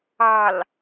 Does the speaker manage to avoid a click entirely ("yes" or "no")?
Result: yes